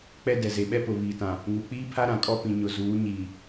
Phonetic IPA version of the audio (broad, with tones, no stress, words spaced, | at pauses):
k͡pɛ˦ dɛ˨ze˨ ɓɛ˦pʊ˨ βiː˨tã˨ | ŋu˨ k͡piː˦pʰa˦ ɾã˨kʼɔ˦ pĩ˨ɲʊ˨ zuː˨˦ɲiː˨